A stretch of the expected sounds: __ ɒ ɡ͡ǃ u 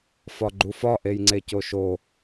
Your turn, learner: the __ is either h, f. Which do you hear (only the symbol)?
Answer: f